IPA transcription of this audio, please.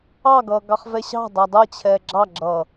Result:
ɑ ɡ ʌː ɡ ɑ χ v ɛ ɕ ɑ̤ dˤ a dˤ ʌ t͡ɕʰ ɛ ɡ͡ǁ ɑ ɡ͡ǁ ʌː

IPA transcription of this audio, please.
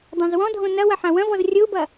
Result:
dˤ ã z w ɔ̃ dʱ õ n ɐ w ɐ ħ ã w ɐ̃ v ɔ z rʲ o u̯ b ɐ

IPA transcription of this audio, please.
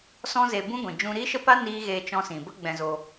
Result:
s ɔ̃˦ z e˧ b ũ˦ ɡʷ ĩ˨ d͡ʒ ũ˧ ɾ i˦ ʃ ə˦ p a˦ n iː˦ ɣ eː˧ t͡ʃ ɔ̃˧ s ĩ˨ b ə˦ ɡ͡b ɛ̃˧ z o˧

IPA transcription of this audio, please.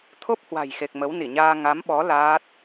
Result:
t̪ʰ o˦˥ p̚ h w a̤˨˩ j x e˨˩ k̚ m ə˨˦ w n i˧˩ ɲ aː˧ ŋ a˨˦ m ɓ ɔ˨˦ l aː˦˥ t̚

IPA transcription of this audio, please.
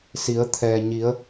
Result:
s i˩˧ ə̯ t̪ʰ ɛː˩ ɲ i˩˧ ə̯

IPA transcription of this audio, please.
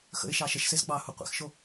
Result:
x ə̰ ɪ̯ ʃ ɑ ʃ ə ʃ s e z ɡ͡b ɑ h u qʷ ḛ x ʃ o

